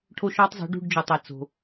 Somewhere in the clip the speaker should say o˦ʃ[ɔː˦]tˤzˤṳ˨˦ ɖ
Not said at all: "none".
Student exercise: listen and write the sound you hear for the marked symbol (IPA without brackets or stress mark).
ɔ˦